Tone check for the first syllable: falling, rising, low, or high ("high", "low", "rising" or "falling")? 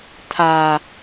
low